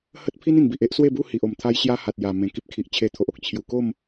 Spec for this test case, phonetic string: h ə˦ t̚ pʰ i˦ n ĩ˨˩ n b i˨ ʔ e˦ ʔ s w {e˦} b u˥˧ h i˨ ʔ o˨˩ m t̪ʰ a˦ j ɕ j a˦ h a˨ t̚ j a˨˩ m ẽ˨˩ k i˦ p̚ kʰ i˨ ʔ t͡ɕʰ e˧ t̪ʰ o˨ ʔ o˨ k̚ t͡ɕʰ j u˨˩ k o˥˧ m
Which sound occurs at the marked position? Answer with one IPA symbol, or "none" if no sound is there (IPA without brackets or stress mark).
e˥˧